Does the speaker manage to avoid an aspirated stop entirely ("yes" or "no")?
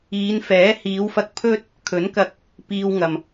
no